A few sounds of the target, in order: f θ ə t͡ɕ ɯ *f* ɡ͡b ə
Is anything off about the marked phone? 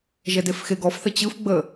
no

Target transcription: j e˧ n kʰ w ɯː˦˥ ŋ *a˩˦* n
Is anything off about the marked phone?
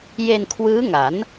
no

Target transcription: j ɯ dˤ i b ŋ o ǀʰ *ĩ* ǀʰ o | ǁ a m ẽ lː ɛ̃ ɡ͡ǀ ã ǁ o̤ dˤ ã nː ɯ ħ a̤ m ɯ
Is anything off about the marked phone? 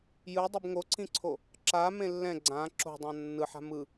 no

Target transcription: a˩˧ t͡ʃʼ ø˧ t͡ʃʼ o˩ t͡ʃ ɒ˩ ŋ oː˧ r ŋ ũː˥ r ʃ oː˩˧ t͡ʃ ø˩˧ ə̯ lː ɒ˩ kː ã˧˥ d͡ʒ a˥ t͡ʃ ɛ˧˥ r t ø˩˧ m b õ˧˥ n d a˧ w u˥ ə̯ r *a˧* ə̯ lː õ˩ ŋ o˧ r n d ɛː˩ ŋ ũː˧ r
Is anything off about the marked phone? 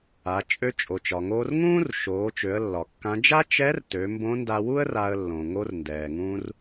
no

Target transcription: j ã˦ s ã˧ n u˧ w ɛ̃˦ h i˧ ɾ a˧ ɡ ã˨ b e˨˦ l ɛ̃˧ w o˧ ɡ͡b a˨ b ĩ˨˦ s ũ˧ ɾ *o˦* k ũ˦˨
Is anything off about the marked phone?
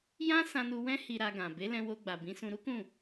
yes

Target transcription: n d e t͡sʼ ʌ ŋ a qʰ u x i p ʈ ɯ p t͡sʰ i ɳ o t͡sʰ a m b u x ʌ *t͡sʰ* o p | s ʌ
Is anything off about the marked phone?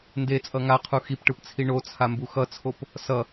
no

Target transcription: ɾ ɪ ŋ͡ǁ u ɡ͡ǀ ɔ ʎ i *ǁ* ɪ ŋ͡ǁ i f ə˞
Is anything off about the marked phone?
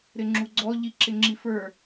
no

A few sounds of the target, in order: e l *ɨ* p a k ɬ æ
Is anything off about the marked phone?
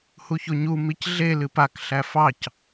no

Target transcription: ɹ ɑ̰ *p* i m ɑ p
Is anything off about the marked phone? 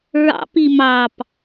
no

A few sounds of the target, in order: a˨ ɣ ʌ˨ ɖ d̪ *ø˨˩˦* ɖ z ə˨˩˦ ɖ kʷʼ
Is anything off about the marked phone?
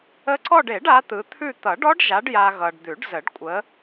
yes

